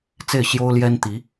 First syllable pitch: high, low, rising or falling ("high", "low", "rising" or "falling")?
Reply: falling